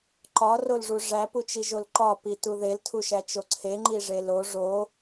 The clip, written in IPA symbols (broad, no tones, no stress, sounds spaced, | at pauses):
ǃ ɒ r o l ʐ u ʐ æ p u t͡ʃ i ʒ o l ǃ ɒ p i t u ð e l tʰ u ʃ æ t͡ʃ o ǀʰ e ŋ͡ǃ i ʐ e l o ʐ o